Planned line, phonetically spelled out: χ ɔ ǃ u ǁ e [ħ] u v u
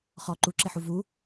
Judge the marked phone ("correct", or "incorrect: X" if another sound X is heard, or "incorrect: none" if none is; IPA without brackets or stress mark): correct